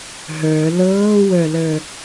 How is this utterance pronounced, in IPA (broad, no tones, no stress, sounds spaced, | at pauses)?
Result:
ɦ ə˞ l ɤː w ə˞ l ə˞